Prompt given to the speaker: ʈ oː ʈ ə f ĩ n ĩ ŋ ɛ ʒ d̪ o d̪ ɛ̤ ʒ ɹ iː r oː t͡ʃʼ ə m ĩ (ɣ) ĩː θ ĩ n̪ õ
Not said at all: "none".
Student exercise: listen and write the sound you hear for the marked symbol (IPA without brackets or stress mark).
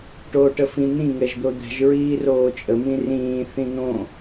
r